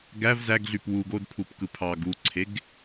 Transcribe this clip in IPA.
ɡ æ v z æ ɡ ɮ y p w u ɡ o d pʰ u p k ɯ pʰ ɑ ɡ u ǀʰ e ɡ

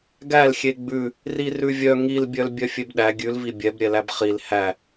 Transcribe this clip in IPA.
ɡ æ l xʲ e ɡ͡b ʉ | r i r ʉ vʲ œ ŋ i l bʲ œ l bʲ œ fʲ e b ɗ æ ɡʲ ʉ l v i bʲ ɛ b ɾʲ ɛ l æ b χ i l h æ

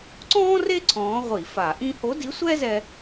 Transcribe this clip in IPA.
ǀ ɔ̃ː˥ r e˥ ǀʰ ɔ̃ː˧˥ ʁʷ i˧˩˧ f a˧˩˧ ʔ ĩ˥ h o˧˥ d i˧˥ sʷ ɛː˥ z ɛ˧

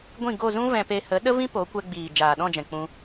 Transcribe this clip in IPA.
ɡʷ ĩ˦˨ ɡ o˦˨ z ũ˦ v ɛ̃˧ p e˧ h ə˨˦ ɗ ə˦ v ĩ˦ p o˨˦ kʷ ɛ˧ ɡ͡b iː˨ d͡ʒ aː˨ ɗ ɔ̃˦˨ d͡ʒ ɛ̃˨ k͡p ũ˧

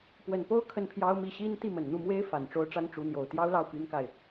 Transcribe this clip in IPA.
p w ə˨˩ n p o˥ ʊ̯ kʰ ə˥˩ n pʰ j ɑ˥ ʊ̯ m i˥˩ ɕ i˥ n t̪ i˥˩ m ə˨˩ n n̪ u˥˩ m w e˥ ɪ̯ f a˨˩ n ʈ͡ʂ o˥ ʊ̯ ʈ͡ʂ a˥ n ʈ͡ʂ u˧˥ n̪ j o˨˩ ʊ̯ t̪ j ɑ˥ ʊ̯ l ɑ˥˩ ʊ̯ p y˥ n k a˨ ɪ̯

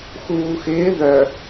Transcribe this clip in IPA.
x uː x ɪː ð œ

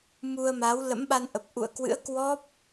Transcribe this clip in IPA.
m u˧ ə̯ m a˨˦ w l ə̰˧˥ m ɓ a˧ n ʔ ə˨˩ p̚ ʔ ṵ˧˨ ə̯ k w ɨ̰˧˥ ə̯ k w ɔ˦˥ p̚

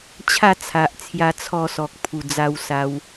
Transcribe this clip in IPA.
t͡ɕʰ a˥˧ t͡sʰ a˨ ʔ t͡sʰ j a˧ t͡sʰ ɔ˧ s ɔ˨ k̚ pʰ u˨˩ d͡z a˧ w s a˧ w

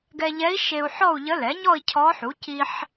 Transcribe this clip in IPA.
ɡ ɛ˧ ʎ ɛ˧˥ i̯ ʃ e˧ u̯ ħ ɔ˥˧ u̯ ʎ ə˧˥ l ɛ˩˥ ɲ ɔ˥˧ i̯ cʰ ɔ˧˥ ħ u˩˥ c i˧ ħ

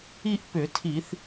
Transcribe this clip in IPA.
i˥˧ ʔ p ʏ˧˩˧ tʰ i˧˩˧ θ

